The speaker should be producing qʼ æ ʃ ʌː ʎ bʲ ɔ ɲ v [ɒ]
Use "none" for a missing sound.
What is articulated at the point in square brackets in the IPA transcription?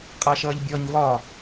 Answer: ɒ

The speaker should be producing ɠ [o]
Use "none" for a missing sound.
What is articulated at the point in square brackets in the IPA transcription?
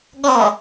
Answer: ɔ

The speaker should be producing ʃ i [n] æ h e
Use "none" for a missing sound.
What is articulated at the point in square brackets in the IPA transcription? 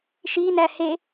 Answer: n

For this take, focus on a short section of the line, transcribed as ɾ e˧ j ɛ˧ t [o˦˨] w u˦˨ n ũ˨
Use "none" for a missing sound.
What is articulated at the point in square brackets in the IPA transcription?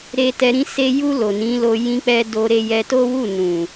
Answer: o˦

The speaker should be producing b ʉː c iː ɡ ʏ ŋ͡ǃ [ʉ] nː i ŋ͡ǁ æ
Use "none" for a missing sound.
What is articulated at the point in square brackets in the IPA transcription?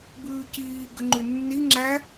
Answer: ʉ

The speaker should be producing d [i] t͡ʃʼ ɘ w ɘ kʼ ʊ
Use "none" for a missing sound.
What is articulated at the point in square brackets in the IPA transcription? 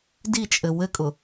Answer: i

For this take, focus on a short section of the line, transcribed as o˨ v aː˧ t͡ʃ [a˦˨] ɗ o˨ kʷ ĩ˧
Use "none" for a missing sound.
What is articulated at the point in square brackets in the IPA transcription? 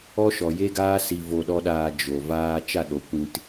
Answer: a˦˨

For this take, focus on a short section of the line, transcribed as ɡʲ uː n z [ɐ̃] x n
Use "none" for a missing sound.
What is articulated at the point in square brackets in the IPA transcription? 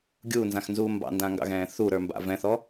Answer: ã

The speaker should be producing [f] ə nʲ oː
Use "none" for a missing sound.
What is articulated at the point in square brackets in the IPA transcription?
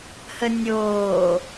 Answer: h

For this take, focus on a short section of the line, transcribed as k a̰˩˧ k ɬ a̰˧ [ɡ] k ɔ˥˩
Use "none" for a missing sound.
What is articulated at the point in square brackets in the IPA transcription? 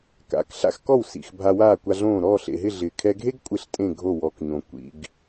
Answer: x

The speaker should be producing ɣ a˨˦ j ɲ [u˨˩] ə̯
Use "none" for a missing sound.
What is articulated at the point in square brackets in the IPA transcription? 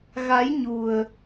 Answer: u˨˩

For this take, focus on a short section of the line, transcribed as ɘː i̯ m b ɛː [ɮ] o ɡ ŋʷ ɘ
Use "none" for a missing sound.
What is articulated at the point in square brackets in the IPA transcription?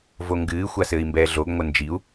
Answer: ɮ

